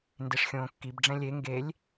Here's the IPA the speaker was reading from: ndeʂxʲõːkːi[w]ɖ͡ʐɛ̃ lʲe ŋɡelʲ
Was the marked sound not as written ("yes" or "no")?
yes